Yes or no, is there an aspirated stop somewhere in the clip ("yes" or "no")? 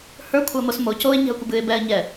yes